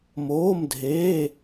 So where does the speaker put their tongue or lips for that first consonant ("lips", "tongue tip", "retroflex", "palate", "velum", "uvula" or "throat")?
lips